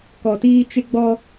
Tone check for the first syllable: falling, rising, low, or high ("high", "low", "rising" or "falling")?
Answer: low